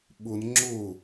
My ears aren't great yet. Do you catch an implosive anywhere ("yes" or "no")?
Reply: yes